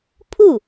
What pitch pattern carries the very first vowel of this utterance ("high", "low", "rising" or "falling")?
falling